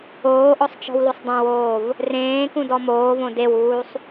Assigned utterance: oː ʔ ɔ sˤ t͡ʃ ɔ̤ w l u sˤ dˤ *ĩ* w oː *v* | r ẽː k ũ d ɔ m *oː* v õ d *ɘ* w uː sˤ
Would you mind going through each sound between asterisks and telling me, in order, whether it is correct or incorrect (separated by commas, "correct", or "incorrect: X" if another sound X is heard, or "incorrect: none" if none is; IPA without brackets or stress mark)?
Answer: incorrect: ẽ, correct, correct, incorrect: e